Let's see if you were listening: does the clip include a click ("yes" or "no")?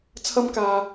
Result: no